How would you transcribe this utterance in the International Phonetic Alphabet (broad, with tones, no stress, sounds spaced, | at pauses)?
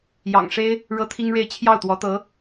j ɑ̰˨˩ ŋ ʂ e˥ ɪ̯ | ɻ ɤ˥ t̪ʰ i˥ ŋ ɻ e˥˧ ɪ̯ t͡ɕʰ j ɑ˥˩ ʊ̯ t̪ w ɔ˧˥ t̪ ɤ˧˥